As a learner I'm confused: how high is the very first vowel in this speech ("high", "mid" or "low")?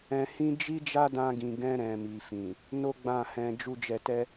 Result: mid